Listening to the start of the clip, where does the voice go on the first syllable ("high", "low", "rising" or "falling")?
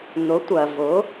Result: rising